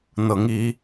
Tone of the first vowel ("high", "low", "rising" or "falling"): rising